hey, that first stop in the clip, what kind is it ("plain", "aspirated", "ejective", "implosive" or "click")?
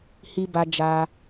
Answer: plain